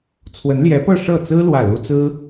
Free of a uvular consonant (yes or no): yes